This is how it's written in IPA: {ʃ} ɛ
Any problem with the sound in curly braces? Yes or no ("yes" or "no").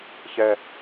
yes